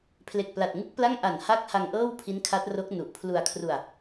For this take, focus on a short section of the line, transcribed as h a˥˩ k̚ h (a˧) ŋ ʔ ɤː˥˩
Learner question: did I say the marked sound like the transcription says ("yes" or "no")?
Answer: yes